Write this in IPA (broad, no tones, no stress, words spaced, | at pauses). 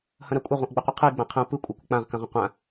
hɐ̃ɾakʷʼɐ ʁʷɐ̃ʔɡ͡bəqʷɛqʰɯi̯ ɡ͡bãqʰə̃u̯ pɯ kʷʼakʷək͡pãʁ kɐ̃ʁə̃qʷã